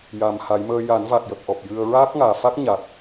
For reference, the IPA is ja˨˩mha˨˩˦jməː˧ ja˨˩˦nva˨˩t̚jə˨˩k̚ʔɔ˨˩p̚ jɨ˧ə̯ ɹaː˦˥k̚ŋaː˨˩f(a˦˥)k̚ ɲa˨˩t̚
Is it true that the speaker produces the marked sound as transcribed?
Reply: yes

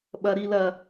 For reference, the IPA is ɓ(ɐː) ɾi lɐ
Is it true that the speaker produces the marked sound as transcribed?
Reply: no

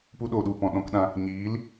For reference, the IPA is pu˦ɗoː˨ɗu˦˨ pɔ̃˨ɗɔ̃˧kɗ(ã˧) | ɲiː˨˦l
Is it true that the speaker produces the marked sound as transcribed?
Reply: yes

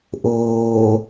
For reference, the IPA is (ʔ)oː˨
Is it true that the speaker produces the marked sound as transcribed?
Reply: yes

